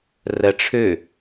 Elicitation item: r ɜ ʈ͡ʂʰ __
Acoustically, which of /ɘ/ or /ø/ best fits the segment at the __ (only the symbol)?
ø